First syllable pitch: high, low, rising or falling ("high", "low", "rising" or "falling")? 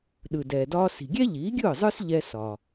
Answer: low